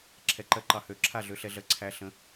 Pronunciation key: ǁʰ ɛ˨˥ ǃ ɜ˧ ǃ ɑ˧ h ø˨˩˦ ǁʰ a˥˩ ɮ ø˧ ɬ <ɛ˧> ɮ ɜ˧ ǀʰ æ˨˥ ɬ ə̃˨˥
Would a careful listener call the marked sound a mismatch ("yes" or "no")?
no